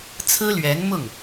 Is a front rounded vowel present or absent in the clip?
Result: absent